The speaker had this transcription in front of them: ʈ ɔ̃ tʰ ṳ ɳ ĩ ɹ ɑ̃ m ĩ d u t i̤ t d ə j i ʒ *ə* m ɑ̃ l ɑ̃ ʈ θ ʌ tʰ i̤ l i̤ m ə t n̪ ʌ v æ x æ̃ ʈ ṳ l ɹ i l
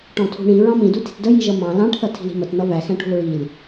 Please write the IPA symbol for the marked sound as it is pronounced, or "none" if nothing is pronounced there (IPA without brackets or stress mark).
ʌ